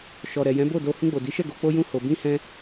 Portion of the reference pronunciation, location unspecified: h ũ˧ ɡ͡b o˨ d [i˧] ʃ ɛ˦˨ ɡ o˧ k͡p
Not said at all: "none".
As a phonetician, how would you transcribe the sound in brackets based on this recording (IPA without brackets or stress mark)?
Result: i˨˦